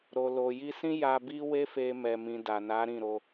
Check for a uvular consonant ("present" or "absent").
absent